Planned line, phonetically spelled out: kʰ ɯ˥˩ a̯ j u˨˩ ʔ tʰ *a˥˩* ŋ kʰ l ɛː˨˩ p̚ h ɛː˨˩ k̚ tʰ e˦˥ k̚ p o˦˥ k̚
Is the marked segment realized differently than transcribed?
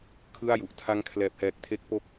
yes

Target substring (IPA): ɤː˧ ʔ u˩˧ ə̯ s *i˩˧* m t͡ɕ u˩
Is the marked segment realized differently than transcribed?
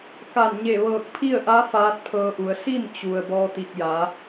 yes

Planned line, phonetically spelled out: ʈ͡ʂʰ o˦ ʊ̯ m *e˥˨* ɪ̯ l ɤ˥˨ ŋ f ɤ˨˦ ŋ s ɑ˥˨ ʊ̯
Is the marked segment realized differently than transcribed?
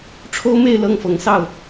no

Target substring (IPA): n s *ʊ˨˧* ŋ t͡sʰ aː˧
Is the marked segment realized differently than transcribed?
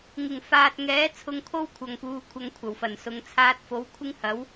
no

